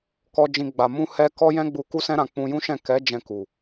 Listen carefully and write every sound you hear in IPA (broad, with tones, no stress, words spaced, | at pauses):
kɔ˧d͡ʒĩ˧ ɡ͡ba˨mũ˧ hɛ˦ kɔ˦jɛ̃˦ɡ͡bu˧ ku˦sɛ̃˦ɾã˧ k͡pũ˧jũ˦ʃɛ̃˦˨ kɛ˨˦d͡ʒɛ̃˧ ku˨